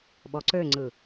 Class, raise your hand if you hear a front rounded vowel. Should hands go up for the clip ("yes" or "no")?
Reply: yes